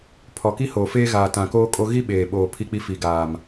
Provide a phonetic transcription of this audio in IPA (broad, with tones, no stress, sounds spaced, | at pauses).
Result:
pʰ ɔ˨ k i˦ h oː˨ f eː˦ ɣ aː˨ t ã˨ k oː˦ kʼ o˦ ɣ i˦ ɓ eː˨ ɓ oː˨ pʰ i˦ k͡p i˦ f i˨ ɡ aː˨ m